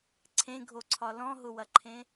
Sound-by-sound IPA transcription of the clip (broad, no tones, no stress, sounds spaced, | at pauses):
ǀʰ ẽ ɡʱ o ǀʰ ɒ l ɔ̃ ɦ ʊ w ɐ ǃʰ ẽ